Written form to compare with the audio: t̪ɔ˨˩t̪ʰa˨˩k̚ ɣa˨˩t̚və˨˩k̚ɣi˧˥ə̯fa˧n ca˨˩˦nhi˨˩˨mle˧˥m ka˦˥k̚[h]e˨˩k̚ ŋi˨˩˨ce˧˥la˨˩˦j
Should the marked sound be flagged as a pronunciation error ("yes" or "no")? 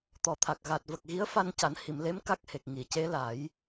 no